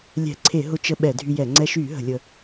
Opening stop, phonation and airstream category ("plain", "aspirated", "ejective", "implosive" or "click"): click